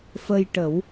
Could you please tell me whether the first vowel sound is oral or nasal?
oral